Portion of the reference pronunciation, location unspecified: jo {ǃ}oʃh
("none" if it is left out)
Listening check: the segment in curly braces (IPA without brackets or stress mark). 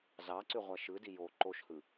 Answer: ǃ